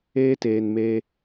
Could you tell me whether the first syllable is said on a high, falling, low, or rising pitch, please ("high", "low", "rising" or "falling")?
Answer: high